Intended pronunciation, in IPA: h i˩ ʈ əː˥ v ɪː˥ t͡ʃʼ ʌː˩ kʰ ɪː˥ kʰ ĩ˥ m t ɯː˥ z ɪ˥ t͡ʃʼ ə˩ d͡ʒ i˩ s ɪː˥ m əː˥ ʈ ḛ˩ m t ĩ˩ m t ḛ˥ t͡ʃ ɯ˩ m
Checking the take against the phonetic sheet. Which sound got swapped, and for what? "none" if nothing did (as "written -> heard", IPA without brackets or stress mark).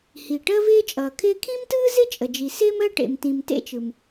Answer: none